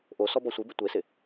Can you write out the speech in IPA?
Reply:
ʔ o s ɔ b ɔ sʷ i b ɪ tʷ e s ɪ

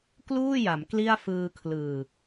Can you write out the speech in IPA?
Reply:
k l uː˥˩ j a˩˦ m k l i˥˩ a̯ f ɯː˧ kʰ l ɯː˨˩

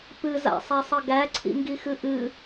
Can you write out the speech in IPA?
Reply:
p ɨ z a̰ sˤ æ sˤ ə ɡ æ ǀʰ ḭ ŋ ɡ i x ɨ ʔ ɨ

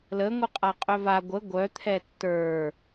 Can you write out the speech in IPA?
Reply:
l ə ŋʷ ɯ qʼ a qʼ œ v a ɡʷ ə ɡʷ œ t̪ʰ ɛ tː ə˞

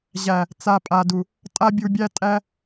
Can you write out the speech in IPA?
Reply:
ʑ æ˨ | t͡s a˨ pʼ a˨ d u˨ | tʼ a˦ bʲ u˧ bʲ æ˦ tʼ æ˧

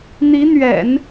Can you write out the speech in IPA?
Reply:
n̪ i˧˥ n̪ ɥ ɛ̰˨˩˦ n

